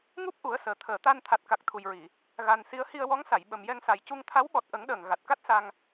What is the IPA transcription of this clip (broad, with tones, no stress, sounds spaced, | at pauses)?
ŋ u˦˥ p̚ ʔ u˨˩˦ ə̯ s əː˨˩ t̪ʰ əː˨˩˨ t̪ a˧ n t̪ʰ a˨˩ t̚ k a˨˩ k̚ t̪ʰ u˨˩ j ɹ i˨˩˨ | ɣ a˨˩ n s i˧˥ ə̯ h i˧ ə̯ w ɔ˧˥ ŋ s a˨˩˨ j ɓ ə˨˩ m j ɛ˧ ŋ s a˨˩ j c u˧ ŋ t̪ʰ a˧˥ w ɓ ɔ˨˩ t̚ ʔ ə˨˩˦ ŋ ɗ əː˨˩ ŋ ɣ a˨˩ t̚ k a˦˥ t̚ s a˧ ŋ